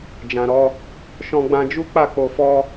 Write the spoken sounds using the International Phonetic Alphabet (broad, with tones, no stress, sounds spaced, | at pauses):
d͡ʒ ã˨ ɾ ɔ˧ | ʃ ɔ̃˧ ɡ͡b ã˧ d͡ʒ u˦ k͡p a˦˨ k͡p o˧ f ɔ˦